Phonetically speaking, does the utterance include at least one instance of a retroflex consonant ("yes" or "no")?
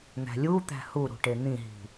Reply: yes